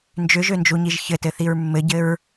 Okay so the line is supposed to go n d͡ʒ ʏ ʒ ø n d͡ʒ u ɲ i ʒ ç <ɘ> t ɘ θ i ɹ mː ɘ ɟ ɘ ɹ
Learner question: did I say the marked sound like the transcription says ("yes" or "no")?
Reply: yes